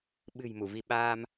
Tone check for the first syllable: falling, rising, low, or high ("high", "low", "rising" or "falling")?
low